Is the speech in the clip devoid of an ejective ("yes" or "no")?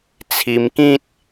yes